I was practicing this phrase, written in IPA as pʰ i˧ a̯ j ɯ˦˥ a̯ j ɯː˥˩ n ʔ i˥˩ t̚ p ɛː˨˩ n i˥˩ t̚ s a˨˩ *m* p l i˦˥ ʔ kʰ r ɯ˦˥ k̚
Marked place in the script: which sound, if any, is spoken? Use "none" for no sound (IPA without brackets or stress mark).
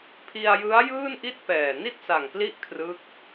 ŋ